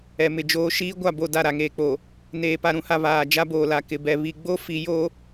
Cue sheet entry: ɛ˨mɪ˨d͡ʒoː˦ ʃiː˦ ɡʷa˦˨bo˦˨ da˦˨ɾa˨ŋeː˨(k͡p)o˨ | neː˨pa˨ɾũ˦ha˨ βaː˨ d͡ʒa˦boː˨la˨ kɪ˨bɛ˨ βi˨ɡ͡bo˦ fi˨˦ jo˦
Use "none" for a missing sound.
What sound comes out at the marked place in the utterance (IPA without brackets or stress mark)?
k͡p